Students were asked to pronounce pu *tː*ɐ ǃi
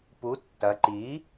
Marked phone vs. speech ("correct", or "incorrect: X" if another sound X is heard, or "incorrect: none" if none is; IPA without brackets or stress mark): correct